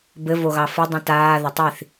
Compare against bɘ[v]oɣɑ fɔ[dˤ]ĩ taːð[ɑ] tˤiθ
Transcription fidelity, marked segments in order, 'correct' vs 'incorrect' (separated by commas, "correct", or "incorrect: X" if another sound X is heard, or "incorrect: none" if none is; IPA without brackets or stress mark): correct, correct, incorrect: a